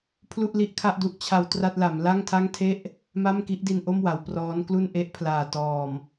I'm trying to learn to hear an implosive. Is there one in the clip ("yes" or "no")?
no